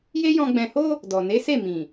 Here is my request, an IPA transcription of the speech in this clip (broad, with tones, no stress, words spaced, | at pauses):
je˦jɔ̃˧ ɡ͡bɛ̃˨ho˧ | dɔ˨ ne˨˦ se˦˨mĩ˨